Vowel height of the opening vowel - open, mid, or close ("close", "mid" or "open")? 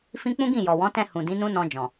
close